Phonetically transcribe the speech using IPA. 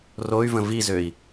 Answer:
roy̯və̃ vizøi̯

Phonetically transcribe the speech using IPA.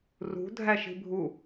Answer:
rṳ dʱæʃi̤bʱu

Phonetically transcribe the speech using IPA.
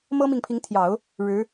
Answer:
mɤ˥mi˨ŋpʰi˧˥ŋt̪ʰjɑ˨˩˦ʊ̯ | ɻɻ̩˧˥

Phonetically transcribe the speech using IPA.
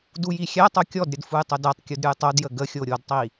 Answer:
dujixʲætˤo kʲɔdɾʲəd fujtˤədætˤkʲud ɾʲujtˤodjə ɡəxʲo ɾʲodtˤi

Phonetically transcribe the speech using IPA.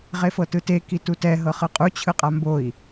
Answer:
ʁefɤtɯte kitutɛ ɦɤχɯqʼu t͡ɕʰɯqʼamboi̯

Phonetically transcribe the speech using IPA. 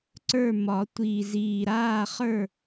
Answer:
ǀə˞˥˩mɒ˨˩˦ tʷiː˨˩ziː˨˩ ɾaː˥˩χə˞˥˩

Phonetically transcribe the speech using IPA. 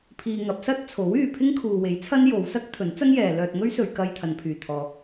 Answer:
pʰiː˧ŋɐ˨˥p̚ sɐ˥t̚t͡sʰo˨˥wyː˨ pʰɪ˥ŋkʰuː˨we˨˥j t͡sʰɐ˥njo˨˧w sɐ˥k̚ t̪ʰɵ˨˥nt͡sɐ˥ŋjɛː˨lœː˧t̚ ŋɵ˥ɥsɵ˨ɥkɐ˧j t̪ʰɐ˨˧npʰyː˨ t̪ʰɔː˨

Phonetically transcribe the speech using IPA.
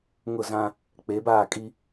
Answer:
ŋʊ˦˨zã˦ | k͡pe˨˦baː˦˨kʼi˦

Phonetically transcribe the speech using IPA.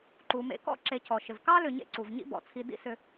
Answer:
ǃu˨mḛ˦ kɔ̰˥ǁe˨ cʰɔ˩ʃɪ˩vkɑ˥ lʏ˨ɲḛ˦ǀu˩v ɲḭ˦bɔ̰˩t͡sʰi˨ dḭ˦sʏ˨

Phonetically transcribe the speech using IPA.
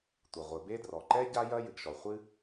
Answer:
tʷɐ˩ʁʷɘ˩be˥ drɔ˩ǃɛ˥ ɟa˥jɐ˥ jɨ˩ɡʃɔ˩χʷɨ˥

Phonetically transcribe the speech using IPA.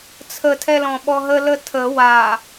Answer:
t͡sʰətʰɛ lɔ̃ɓɔɦələ tʰə wa

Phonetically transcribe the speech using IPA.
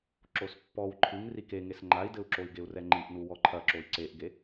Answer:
ǁospːɔw ǃʰɨŋ rikeŋes ŋ͡ǃai̯dɘu̯ǁoi̯ɡeu̯ rɛŋ͡ǃiʔnu wɔǃʰɐǁoi̯ ǀeʔɡe

